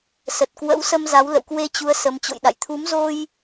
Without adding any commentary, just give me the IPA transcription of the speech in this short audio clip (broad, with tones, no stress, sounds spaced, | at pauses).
s ə˨˩ t̚ k w ə̰˧˥ w s ə˧ m z a˨˦ w l ə̰˧˨ w k w e˧ t͡ɕ u˨˦ ə̯ s ə˨˦ m t͡ɕ o̰˧˨ j ɗ a̰˧˨ j t̪ʰ u˨˦ m z o˧ j